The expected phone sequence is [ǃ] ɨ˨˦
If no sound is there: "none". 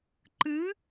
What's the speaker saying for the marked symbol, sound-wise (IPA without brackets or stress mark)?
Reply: ǃ